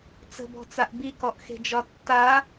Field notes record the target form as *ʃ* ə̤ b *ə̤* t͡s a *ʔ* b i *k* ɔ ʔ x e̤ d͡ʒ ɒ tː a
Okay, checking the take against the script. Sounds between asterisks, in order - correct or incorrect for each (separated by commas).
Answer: incorrect, incorrect, correct, correct